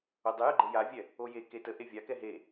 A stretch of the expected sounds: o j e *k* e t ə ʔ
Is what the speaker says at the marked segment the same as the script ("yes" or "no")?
yes